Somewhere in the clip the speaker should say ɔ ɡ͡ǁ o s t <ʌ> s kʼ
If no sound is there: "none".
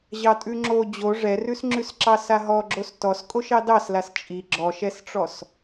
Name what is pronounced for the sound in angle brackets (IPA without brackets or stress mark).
ɔ